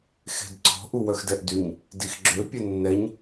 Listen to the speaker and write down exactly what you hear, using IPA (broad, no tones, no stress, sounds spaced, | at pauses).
x e̤ d ǀ ɔ̤ ʔ u w œ x d ɛ ʔ d y ɲ | d i x ɡ͡ǁ ø pʲ œ nː ɛ ɲ